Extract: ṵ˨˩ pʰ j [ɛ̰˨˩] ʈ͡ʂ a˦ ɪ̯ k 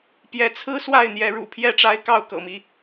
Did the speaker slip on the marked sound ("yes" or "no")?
yes